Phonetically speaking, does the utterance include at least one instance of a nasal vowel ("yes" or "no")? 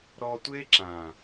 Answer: yes